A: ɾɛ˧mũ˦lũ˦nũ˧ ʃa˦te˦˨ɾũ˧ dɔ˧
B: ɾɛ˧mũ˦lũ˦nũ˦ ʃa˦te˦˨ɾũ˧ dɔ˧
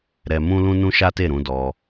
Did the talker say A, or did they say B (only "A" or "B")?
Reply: B